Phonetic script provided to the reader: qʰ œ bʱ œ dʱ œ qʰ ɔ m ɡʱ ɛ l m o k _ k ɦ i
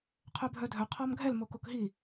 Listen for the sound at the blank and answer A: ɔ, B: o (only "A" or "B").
B